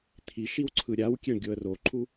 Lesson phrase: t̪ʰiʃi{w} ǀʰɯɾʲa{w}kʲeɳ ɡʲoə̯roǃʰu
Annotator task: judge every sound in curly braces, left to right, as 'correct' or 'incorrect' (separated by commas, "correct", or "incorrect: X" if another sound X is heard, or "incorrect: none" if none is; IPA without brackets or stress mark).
correct, correct